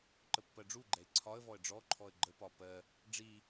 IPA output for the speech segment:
ǃ ə pː ɜ ɖ͡ʐ u ɡ͡ǃ ɛ ɪ̯ ǀʰ ɒ ə̯ v ɔ ə̯ ɖ͡ʐ ɔ ǃʰ ɔ ə̯ ɡ͡ǃ ə p ɒ p ɜ | ɖ͡ʐ i

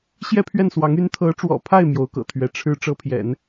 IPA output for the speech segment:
ɕ j ɛ˥˧ pʰ ɥ ɛ˥˩ n s w ɑ˧˥ ŋ y˧˥ n t̪ʰ ɤ˧˥ ʈ͡ʂ w ɔ̰˨˩ pʰ a˥˩ ɪ̯ m j o˧˥ ʊ̯ k ɤ̰˨˩ t̪ʰ ɥ ɛ˧˥ ʈ͡ʂʰ ɻ̩˥ ʈ͡ʂ ɤ˥ pʰ j ɛ̰˨˩˦ n

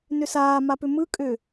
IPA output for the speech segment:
n ʏ s aː m a p ʏ m ɯ kʼ ʏ

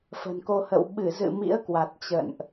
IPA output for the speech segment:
f ə̤˨˩ n k o˧ h ə̰˧˨ w ɓ ɨ˧˩ z ɨ̰˧˨ m ḭ˧˥ ə̯ k w a˨˩ t̚ t͡ɕ ə̰˧˨ n ʔ

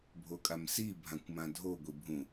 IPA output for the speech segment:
bʱ o kʼ a m s i bʱ ã kʷ m ã dʱ o ɡʷ i bʱ ũ

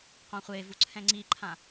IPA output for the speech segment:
q õ χʷ e v u ǀʰ ɛ̃ ŋ͡ǀ i ǃʰ ã

